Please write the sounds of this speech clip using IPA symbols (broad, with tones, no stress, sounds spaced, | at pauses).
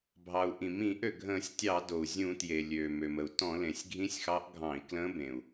bʱ ɑ˩ u̯ ʔ ĩ˩ m ĩ˧˩˧ ʔ ø˩ ɡʱ ə̃ː˧˩˧ sʲ tʲ ɑ˧˩˧ d o˩ u̯ zʲ ũ˧˩˧ t j e˩ lʲ øː˩ m ø˩ m ə˩ u̯ t ɔ̃˧˩˧ l ẽ˩ sʲ ɡʱ ĩ˧˥ sʲ x ɑ˧˥ ʔ ɡʱ ɑ̃˧˩˧ i̯ k l ə̃ː˧˥ b ẽ˩ u̯